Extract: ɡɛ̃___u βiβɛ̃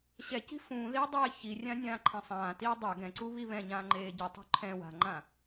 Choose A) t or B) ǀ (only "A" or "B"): B